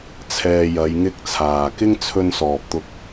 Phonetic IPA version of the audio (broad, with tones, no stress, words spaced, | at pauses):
t͡sʰɛː˧jɐ˨˧jŋɪ˥k̚t͡sʰaː˨ kɪ˥ŋt͡sʰɵ˧nsɔː˨p̚t̪ʊ˧k̚